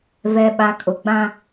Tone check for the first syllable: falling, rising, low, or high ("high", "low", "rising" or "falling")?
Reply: low